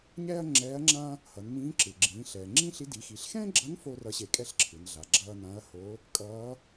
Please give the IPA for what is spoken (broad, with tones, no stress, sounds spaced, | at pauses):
ɲ ɛː˥ ɐ̯ ŋ͡ǁ ɛː˧˥ ɐ̯ ŋ͡ǁ ã˥ | h ʌ˩˧ n m ĩː˧˥ ǁ ɯ˩ ɡ͡ǁ ĩː˩˧ ɬ ɛː˩ ŋ͡ǁ ĩ˥ ɬ i˧˥ d i˩˧ x i˩˧ ɬ x ɛ̃ː˥ ɡ͡ǁ ʌ˧˥ n f o˥ r ʌ˧˥ ɕ e˧ kʼ ɛ˥ ɬ ǁʰ ɯ˩˧ n ɮ a˩˧ ɡ͡ǁ ʌː˥ n ã˧˥ ɐ̯ h o˧˥ | kʼ ʌː˧˥